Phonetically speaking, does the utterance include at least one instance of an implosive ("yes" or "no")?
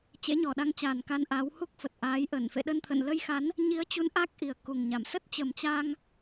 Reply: yes